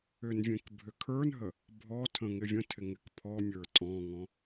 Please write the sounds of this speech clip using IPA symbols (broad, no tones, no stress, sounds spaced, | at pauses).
ʏ n vʲ ẽ k bʱ ʏ kʰ ə˞ n ɦ ə | bʱ ɔ tʰ ə̃ ŋ ɪ vʲ ə̃ tʰ ɪ ŋ ɪ k pʰ ɔ mʲ ə˞ tʼ ɔ̃ ŋ ɔ̃